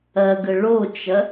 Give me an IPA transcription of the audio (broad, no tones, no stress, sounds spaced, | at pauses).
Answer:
ɐ ɡ ə ɭ o t͡ʃ ɐ